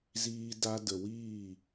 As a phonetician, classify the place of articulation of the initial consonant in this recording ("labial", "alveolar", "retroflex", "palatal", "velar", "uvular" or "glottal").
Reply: alveolar